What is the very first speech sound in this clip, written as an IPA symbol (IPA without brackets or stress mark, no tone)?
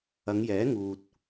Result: ɐ